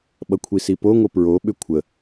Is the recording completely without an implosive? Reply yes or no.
no